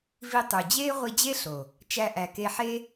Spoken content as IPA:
v i˧ tˤ u˨ d͡ʑ eː˦ ʁʷ i˧ d͡ʑ e˦ ɬ o˨ | t͡ʃ æ˧ ʔ æ˨ k e˧ ħ e˦

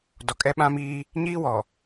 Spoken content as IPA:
d ɔ˨ kʼ ɛ˦ ɓ ã˦ m iː˦ | ɲ iː˦ w ɔ˨

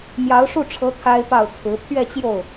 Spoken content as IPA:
m j ɑ˧˥ ʊ̯ ʂ u˥˩ ʈ͡ʂʰ ɤ˧˥ t̪ʰ a˥ ɪ̯ p ɑ˥˩ ʊ̯ t͡sʰ ɹ̩˧˥ pʰ ɥ ɛ˥˧ t͡ɕ j o˥˩ ʊ̯

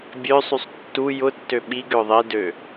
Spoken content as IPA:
bʲ ø sˤ y sˤ tː u j ʊ tː ø ɓ i ɡ ʏ ʊ̯ ðˤ i d ø

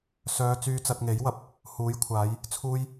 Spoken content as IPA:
s œː˨˧ t͡s yː˧ t͡s ɐ˧ t̚ ŋ e˨˥ j w ɐ˧ p̚ | h uː˨˥ j kʷʰ aː˨˧ j | t͡sʰ uː˥ j

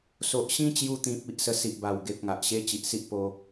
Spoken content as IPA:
s o˨ ʔ ɕ ĩ˦ t͡ɕ j u˧ t̪ ĩ˨ p̚ i˦ ʔ s ə˧ s i˨ ʔ b a˨˩ w ɡ e˨ p̚ ŋ a˨ ʔ ɕ e˦ t͡ɕ i˨ ʔ s i˦ ʔ p o˧

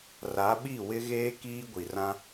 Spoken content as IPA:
r a˨˦ ɓ i˦˨ w ɪ˦ ɣ eː˦ k iː˦ ɡʷ i˨ r ã˦

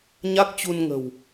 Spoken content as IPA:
ɲ a˦˥ k̚ t͡ɕ u˧ n ŋ ə̤˨˩ w

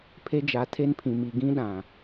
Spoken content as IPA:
pʰ e˦ d͡ʒ a˨˦ tʰ e˦ n pʰ ĩ˨ m i˨ ɡ ĩ˦ ɗ ã˨

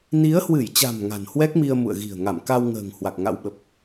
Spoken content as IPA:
n i˨˦ ə̯ h w ɨ˧˩ j t͡ɕ a̤˨˩ m ŋ a̤˨˩ n h w ɛ˦˥ k̚ m i˧ ə̯ m ṵ˧˨ ə̯ ɣ i̤˨˩ ə̯ ŋ a˧˩ m k a˧ w ŋ ə̤ː˨˩ ŋ h w a˨˩ k̚ ŋ a̰˧˥ w ɓ ə˨˩ p̚

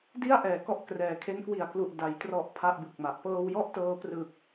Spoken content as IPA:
d i˥˩ a̯ ʔ ɛː˩˦ k ɔ˦˥ ʔ k r ɛː˩˦ kʰ e˦˥ n k w i˨˩ a̯ k l u˨˩ ʔ d a˩˦ j t r ɔ˨˩ ʔ pʰ a˥˩ ʔ b ɯ˨˩ k̚ m a˨˩ ʔ p ɤː˧ w j ɔ˥˩ ʔ t ɤː˧ p r ɯ˨˩ k̚

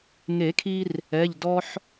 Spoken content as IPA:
ŋ e˨˩˦ kʰ i˧ r | ɛ˩˧˩ ʎ d ɔ˧ ħ

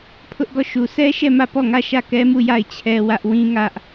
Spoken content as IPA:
pʰ ʊ˦ ʔ ɡ ɔ˦˨ ʃ u˨ s ɛ˦ ʃ ɛ˦˨ m ä˦˨ p ɔ˦˨ ŋ ä˦˨ ʃ ä˦˨ k ɛ˦ m u˦˨ j a˦˨ ɪ̯ t͡ɕʰ ɛ˦ w ä˦ ʔ w ĩ˦ ŋ ä˦ ʔ

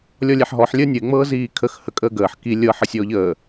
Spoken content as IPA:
lʲ ɔ lʲ ɛ ħ ɦ ɔ ħ lʲ əː nʲ ə e̯ ŋ͡m ɤː z iː kʰ ə x h ə kʼ əː ɡ əː ħ k i lʲ ɤ ħ ə sʲ ɔː ʎ əː

